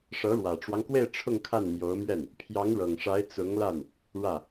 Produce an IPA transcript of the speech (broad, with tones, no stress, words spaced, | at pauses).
ʂɤ˧˥ɻwä˨˩ʈ͡ʂwɑ˦ŋkwe˥˧ɪ̯ ʈ͡ʂʰʊ˥˧ŋkʰa˥˩nmjo˧˥ʊ̯mɥɛ˥˩n | pʰjɑ˧˥ŋɻɤ˨˩ŋʂa˧˥ɪ̯ t͡sʊ˧˥ŋla˥˩n | ɻä˥˩